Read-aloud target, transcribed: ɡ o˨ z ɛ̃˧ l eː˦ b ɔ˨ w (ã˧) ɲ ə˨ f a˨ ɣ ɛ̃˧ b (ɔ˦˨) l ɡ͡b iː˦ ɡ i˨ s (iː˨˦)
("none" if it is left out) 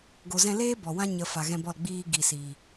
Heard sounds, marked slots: ã˦, ɔ˦˨, iː˨

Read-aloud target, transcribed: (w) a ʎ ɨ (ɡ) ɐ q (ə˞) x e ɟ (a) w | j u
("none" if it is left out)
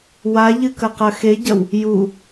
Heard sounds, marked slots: w, k, ɐ, ɐ

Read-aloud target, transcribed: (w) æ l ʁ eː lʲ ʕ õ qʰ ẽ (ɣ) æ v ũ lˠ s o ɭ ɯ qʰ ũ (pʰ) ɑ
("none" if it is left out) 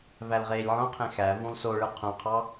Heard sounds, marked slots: v, x, qʰ

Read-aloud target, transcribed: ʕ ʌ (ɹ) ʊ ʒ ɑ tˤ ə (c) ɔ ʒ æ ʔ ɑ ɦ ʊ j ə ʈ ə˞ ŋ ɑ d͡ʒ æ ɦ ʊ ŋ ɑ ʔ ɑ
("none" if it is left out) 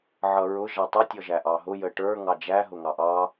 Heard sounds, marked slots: ɹ, tʲ

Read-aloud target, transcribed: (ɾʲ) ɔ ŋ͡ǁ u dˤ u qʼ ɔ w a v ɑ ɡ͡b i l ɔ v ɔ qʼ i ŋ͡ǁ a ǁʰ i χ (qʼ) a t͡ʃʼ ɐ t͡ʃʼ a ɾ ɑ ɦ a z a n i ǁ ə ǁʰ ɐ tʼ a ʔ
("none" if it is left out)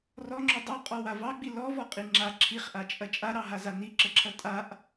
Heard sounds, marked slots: r, ʔ

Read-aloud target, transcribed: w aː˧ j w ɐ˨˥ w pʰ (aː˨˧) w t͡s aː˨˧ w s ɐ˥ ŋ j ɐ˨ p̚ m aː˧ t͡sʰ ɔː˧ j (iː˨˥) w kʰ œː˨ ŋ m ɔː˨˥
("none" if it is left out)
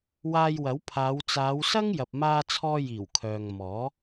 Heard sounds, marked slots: aː˨˧, iː˨˩

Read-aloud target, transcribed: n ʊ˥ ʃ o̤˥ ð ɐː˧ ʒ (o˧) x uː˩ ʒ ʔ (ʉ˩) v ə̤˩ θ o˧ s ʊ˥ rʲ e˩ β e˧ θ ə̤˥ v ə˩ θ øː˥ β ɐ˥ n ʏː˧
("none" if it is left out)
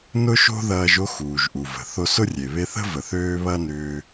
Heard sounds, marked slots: o˥, u˩

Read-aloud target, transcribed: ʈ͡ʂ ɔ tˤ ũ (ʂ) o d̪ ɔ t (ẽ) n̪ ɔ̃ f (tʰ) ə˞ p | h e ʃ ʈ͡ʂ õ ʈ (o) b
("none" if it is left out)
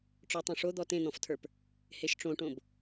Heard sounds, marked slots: ʂ, ẽ, tʰ, õ

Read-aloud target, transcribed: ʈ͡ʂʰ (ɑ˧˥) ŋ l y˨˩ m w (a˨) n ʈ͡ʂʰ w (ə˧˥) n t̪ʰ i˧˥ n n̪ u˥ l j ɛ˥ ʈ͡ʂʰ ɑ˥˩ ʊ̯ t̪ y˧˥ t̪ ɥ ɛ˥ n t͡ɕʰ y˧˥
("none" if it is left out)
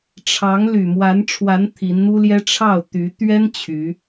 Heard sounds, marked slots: ɑ˧˥, a˧˥, a˧˥

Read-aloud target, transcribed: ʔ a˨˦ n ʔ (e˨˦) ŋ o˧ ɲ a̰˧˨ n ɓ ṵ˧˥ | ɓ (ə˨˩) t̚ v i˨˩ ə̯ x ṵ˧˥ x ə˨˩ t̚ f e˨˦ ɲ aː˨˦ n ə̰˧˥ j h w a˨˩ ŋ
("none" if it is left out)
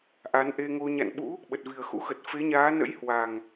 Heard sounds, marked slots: e˧, ə˨˩

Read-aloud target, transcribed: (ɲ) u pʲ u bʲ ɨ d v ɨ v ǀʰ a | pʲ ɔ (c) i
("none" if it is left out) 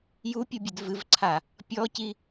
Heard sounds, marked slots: j, c

